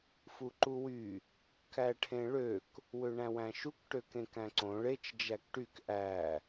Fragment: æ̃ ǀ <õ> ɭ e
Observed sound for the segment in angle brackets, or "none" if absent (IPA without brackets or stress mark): õ